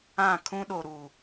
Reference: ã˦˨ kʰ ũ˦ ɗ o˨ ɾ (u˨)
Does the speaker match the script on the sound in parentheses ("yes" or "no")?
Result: yes